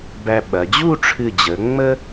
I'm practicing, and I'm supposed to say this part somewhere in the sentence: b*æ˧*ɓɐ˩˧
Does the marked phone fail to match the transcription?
no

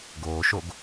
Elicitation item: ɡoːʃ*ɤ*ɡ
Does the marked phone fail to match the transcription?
yes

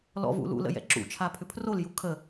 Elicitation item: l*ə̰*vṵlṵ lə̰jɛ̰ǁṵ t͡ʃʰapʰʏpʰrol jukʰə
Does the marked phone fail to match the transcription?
yes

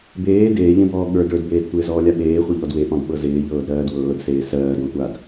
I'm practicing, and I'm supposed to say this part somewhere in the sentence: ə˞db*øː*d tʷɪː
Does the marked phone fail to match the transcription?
yes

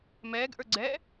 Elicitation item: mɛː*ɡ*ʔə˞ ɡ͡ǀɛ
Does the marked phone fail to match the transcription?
no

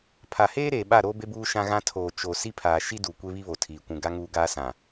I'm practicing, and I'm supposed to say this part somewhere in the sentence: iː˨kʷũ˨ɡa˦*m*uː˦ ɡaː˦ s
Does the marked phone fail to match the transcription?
yes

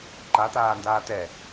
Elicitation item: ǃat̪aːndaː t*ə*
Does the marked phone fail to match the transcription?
yes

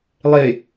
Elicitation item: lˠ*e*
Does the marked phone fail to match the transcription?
no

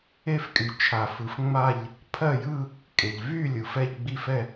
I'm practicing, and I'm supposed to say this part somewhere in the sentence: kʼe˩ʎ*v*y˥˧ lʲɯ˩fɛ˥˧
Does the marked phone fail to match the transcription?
no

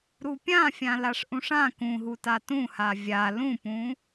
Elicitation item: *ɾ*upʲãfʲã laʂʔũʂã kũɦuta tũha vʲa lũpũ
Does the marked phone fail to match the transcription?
no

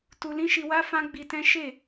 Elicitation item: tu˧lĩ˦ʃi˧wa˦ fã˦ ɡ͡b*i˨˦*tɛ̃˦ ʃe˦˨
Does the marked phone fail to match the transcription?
yes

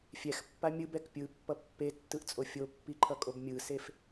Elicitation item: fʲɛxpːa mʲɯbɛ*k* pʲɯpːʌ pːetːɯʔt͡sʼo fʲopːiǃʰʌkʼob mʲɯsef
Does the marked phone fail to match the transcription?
no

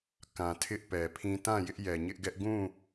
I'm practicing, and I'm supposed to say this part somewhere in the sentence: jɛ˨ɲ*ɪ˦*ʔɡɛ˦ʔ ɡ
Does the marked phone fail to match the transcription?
no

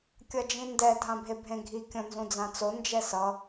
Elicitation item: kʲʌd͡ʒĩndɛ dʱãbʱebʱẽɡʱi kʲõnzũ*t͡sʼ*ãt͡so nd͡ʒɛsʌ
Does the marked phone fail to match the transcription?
yes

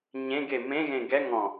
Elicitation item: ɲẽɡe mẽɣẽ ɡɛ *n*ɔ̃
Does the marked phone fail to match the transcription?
yes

